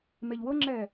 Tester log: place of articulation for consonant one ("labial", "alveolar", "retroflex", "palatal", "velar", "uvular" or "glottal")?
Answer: labial